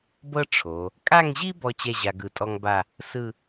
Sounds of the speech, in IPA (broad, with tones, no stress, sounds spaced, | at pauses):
b ɤ˥ ʈ͡ʂʰ o˩˧ | kʼ a˥˧ ŋ ʑ i˥ b ɔ˥ t͡ɕ ɛ˥˧ ʑ a˧ ɡ ɯ˧ tʼ ɔ˥ ŋ b a˥˧ | s ɯ˥˧